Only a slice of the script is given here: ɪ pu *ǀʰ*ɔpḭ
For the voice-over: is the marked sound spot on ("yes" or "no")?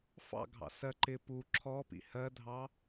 no